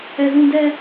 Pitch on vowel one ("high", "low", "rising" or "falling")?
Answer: high